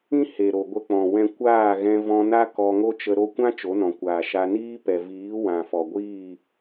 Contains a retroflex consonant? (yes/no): no